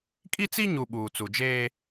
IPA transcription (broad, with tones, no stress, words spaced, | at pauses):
kʼi˦t͡si˦ɲu˨ ɓuː˨t͡su˨ d͡ʒeː˦